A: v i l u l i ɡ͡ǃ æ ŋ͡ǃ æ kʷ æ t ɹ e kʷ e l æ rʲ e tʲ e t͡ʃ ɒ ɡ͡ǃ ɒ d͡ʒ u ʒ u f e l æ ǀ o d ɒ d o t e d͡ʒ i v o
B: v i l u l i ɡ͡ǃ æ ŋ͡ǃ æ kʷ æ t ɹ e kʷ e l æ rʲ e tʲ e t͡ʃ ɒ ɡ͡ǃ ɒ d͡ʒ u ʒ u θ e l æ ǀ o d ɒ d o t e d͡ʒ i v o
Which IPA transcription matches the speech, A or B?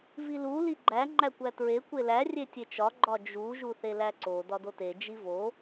B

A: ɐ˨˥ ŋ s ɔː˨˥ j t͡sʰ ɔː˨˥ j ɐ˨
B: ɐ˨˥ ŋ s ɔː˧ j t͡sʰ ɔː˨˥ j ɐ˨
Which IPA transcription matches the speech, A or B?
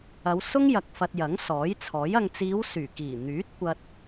A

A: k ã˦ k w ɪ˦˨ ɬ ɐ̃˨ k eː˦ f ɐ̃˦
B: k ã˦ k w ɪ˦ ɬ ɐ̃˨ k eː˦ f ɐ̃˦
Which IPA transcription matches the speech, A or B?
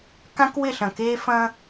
A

